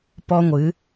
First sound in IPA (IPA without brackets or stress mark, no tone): p